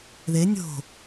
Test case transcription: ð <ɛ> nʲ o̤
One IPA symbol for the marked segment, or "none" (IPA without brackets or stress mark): e